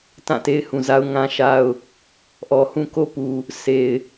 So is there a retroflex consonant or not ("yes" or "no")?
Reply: no